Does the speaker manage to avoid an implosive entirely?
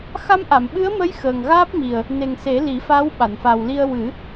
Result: no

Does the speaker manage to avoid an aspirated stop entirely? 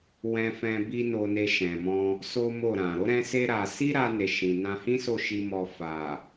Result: yes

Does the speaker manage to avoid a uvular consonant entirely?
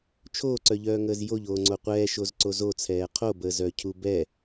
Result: no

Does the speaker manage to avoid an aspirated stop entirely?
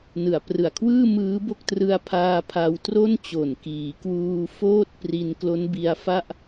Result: no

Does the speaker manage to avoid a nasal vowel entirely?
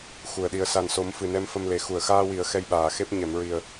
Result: yes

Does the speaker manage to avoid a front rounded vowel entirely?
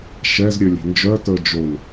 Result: no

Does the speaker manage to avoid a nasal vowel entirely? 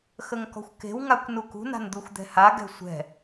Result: yes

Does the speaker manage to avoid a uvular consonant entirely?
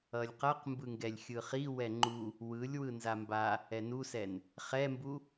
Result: no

